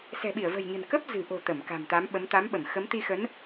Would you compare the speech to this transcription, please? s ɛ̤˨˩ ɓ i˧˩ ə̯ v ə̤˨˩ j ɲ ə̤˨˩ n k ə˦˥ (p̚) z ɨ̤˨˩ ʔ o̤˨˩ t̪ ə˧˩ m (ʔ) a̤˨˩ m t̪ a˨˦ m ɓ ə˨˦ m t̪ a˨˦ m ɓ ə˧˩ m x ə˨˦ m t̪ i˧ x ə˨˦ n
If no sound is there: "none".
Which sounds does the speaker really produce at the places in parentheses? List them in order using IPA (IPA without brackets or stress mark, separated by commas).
p̚, k